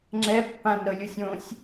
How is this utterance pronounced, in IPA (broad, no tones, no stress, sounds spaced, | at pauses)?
ŋ͡ǁ ɛ pː ã n ɾ ɤ lʲ u sʲ õ sʲ